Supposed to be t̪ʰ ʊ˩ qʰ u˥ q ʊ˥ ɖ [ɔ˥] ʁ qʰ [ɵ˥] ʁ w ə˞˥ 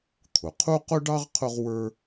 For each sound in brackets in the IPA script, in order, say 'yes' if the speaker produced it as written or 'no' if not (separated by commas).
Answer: no, no